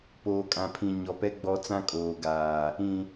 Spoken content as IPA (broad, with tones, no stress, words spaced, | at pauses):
poː˨kʼã˨pʰĩ˨ ɲɔ˨pɛ˦ ɡ͡bɔ˦ t͡sã˦kʼoː˨ɡaː˨ | ĩ˨